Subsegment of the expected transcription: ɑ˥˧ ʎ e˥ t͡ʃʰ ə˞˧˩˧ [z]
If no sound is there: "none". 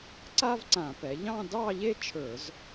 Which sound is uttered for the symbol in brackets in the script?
z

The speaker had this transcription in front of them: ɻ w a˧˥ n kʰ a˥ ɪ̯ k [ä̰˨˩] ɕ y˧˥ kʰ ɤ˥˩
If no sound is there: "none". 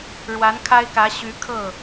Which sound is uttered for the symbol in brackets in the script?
ä˧˥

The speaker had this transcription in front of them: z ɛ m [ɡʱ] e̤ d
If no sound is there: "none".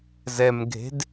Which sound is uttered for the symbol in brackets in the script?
ɡʱ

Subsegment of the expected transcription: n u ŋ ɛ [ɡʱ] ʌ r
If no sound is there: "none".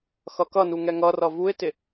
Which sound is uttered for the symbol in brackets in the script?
ŋ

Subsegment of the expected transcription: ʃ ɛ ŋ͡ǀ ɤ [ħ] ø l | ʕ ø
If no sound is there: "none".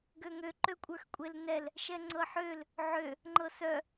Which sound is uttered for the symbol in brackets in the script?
ħ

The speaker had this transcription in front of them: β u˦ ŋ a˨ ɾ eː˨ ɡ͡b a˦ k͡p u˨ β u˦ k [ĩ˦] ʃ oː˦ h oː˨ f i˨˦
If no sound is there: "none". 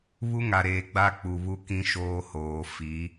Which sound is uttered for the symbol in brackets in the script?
ĩ˦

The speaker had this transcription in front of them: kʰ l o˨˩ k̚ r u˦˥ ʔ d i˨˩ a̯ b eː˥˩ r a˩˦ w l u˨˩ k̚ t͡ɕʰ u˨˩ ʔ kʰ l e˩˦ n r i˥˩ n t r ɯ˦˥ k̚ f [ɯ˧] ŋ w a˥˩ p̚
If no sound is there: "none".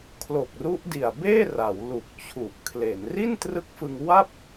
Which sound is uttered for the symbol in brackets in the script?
ɯ˧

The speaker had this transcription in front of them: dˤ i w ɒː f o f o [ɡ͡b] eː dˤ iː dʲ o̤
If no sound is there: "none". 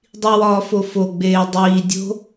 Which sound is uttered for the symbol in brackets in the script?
ɡ͡b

